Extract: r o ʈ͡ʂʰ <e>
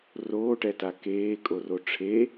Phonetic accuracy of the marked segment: correct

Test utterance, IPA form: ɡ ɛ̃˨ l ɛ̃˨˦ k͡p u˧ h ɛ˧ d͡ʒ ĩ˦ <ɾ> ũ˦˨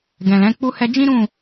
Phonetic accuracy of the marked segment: correct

